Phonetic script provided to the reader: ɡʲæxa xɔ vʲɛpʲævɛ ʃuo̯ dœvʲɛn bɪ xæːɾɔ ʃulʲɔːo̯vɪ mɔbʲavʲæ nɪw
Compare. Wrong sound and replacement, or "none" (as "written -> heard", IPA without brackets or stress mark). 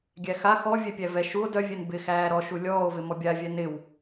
none